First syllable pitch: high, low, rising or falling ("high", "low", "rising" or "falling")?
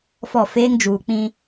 falling